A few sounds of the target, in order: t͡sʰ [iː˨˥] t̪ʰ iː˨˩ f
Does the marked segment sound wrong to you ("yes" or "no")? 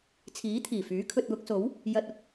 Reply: no